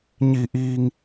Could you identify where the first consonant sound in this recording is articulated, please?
palatal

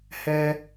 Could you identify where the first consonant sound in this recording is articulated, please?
glottal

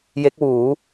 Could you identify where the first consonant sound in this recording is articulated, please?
palatal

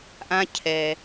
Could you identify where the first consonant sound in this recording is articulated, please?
glottal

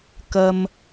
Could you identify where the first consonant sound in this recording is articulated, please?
velar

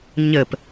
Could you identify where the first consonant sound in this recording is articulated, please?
palatal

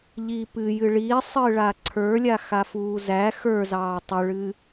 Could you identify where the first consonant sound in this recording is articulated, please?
palatal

